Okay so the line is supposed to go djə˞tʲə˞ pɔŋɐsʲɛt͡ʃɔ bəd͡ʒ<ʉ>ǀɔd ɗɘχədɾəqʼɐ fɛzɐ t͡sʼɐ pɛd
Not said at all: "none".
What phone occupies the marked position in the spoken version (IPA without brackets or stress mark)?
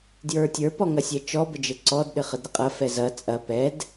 ɘ